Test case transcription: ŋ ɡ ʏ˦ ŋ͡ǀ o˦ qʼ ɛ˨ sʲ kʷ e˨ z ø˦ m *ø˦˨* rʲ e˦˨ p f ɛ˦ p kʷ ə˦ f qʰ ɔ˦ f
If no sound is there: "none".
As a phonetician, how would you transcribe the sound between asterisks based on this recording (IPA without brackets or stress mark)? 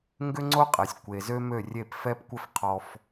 ø˦˨